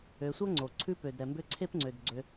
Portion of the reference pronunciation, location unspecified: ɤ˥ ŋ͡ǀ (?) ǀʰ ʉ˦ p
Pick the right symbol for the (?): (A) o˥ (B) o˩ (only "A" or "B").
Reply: B